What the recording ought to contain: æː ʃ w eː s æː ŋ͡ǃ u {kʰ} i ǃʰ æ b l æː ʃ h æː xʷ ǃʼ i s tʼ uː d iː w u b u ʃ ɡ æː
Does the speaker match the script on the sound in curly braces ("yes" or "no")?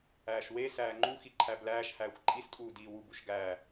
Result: no